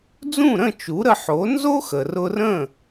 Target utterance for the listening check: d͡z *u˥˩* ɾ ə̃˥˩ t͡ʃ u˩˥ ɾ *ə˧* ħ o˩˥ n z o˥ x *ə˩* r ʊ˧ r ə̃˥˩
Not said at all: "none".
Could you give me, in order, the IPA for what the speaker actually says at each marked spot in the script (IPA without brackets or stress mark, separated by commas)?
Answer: ũ˥˩, ə˧, ə˩